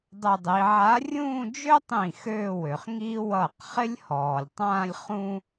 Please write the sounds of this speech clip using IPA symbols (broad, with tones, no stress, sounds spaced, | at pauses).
dˤ ə˥˧ dˤ i˧˥ ʕ a˧˥ rʲ ũː˥˧ d͡ʒ ø˥ tˤ ĩ˥˩ x ø˥˧ w ø˨ χ ŋ i˥ w ʌ˥˩ q χ ɪ˥ lʲ h ɔː˨ lʲ tˤ ãː˥˧ lʲ χ ũ˥